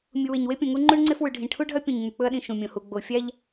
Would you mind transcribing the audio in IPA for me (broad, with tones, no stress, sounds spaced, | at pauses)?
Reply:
mʲ u˨ w e˨ ɲ w e˦ pʲ õ˨ ŋ u˦ ŋ͡ǃ u˦ ɳ ŋ͡ǀ e˦ f w ʉ˨ ɖʱ ĩ˨ ʈʰ u˦ ɖʱ ɐ˦ pʲ õ˨ ɲ ŋ͡m ʉ˨ k͡p ɵ˦ ɐ̯ ɗ ĩ˨ ʃ ũ˨ mʲ õ˨ h u˨ ɡ͡b o˨ fʲ a˦ ʎ